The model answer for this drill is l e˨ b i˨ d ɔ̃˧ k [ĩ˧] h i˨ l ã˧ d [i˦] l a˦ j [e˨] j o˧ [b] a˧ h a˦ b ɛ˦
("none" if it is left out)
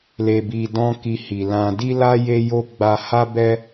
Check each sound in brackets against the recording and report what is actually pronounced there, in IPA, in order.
i˧, i˦, e˧, ɡ͡b

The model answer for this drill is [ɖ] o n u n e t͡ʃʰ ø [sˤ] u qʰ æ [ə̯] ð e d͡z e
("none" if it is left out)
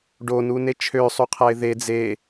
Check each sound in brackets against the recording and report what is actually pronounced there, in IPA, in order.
ɖ, sˤ, ɪ̯

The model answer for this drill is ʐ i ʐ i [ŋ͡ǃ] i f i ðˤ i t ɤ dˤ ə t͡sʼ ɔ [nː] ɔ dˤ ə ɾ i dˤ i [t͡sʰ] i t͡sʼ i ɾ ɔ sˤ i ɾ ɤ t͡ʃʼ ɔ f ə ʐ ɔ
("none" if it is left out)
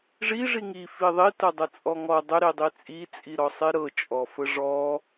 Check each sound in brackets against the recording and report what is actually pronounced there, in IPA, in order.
ŋ, ŋ, t͡sʼ

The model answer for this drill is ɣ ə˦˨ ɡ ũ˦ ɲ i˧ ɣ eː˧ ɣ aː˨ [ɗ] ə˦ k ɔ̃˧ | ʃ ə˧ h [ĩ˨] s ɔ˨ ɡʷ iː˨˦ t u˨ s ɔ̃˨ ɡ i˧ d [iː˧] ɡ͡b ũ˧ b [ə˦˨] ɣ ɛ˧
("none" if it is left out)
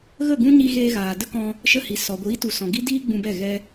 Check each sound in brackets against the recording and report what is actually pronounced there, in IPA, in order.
d, i˨, iː˧, ɛ˦˨

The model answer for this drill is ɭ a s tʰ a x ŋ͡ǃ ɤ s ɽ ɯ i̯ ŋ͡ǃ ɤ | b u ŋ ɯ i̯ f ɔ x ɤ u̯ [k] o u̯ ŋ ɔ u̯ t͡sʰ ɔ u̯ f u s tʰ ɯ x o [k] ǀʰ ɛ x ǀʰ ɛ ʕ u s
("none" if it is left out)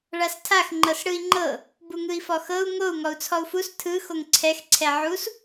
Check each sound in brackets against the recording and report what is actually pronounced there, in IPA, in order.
ŋ, ŋ

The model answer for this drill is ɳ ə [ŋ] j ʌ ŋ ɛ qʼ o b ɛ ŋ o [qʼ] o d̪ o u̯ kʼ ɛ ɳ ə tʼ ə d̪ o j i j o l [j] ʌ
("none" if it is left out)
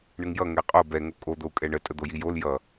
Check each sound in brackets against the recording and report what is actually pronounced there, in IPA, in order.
ŋ, kʼ, j

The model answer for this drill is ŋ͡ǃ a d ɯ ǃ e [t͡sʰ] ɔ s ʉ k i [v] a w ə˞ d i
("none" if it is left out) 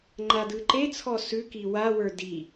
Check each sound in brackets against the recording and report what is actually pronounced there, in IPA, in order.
t͡sʰ, w

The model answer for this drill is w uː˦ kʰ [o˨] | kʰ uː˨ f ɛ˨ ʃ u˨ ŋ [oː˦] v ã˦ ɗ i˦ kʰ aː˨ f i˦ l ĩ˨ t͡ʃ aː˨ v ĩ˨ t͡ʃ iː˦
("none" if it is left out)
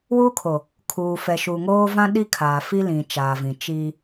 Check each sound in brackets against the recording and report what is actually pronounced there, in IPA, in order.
o˨, oː˦

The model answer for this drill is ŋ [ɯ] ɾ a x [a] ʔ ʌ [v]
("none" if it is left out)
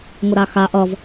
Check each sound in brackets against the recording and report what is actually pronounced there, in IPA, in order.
ʊ, a, v

